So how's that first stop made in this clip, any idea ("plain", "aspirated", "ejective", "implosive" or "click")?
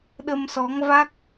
implosive